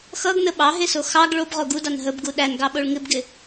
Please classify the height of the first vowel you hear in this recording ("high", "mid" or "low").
mid